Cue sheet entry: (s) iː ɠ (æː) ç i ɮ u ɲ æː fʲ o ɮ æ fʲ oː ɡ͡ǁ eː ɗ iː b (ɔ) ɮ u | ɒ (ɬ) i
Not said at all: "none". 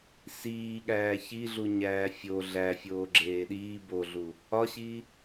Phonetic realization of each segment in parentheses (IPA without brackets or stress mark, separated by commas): s, æː, o, ɕ